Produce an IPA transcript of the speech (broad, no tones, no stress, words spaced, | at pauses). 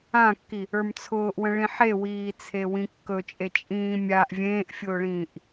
ãkːi | ə˞mt͡sʰʊːʔwə̃ ɭĩħewiːt͡sʰe wĩkːɵt͡ʃʼe t͡ʃʼĩːmʲaʔ vʲẽːʔfʲʊːɭĩːʔ